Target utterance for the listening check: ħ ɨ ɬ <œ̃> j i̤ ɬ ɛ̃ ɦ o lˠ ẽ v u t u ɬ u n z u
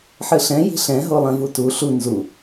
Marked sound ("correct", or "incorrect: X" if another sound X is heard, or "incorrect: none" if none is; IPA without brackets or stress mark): incorrect: ɛ̃